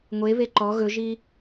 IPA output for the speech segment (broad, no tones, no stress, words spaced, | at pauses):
ŋʷeβe ǃɔ ɣɵʒi